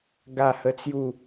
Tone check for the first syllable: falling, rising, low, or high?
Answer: falling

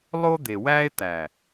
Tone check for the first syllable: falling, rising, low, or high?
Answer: high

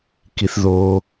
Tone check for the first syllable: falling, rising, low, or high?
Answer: low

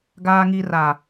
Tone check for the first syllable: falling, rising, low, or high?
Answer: low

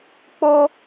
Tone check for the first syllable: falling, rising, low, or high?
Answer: high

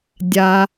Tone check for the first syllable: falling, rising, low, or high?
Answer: low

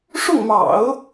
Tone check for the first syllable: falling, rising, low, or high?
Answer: falling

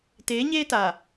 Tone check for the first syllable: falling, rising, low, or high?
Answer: rising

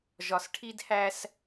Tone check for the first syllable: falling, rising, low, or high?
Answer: low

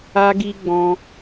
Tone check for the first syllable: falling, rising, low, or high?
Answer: high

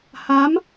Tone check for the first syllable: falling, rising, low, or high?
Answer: rising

